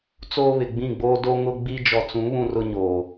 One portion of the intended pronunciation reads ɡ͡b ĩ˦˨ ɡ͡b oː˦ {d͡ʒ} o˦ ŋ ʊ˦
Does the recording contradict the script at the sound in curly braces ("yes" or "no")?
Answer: yes